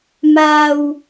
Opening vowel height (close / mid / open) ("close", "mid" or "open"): open